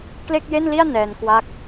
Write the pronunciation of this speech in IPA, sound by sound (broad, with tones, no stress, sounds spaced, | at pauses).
k l e˥˩ k̚ j e˥˩ n l i˥˩ a̯ n ɛː˧ n k w a˥˩ k̚